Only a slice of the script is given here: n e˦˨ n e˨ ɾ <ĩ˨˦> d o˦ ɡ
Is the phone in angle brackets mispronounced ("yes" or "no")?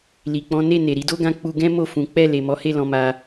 yes